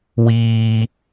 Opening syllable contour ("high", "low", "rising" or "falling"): high